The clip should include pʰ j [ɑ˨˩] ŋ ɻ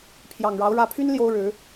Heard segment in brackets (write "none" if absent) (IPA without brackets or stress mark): ɑ˨˩